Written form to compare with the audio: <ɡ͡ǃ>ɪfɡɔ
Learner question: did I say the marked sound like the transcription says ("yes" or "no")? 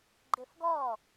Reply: yes